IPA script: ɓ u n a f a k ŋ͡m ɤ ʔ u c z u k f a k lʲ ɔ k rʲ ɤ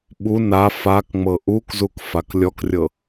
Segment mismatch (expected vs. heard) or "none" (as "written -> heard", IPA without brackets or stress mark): c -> k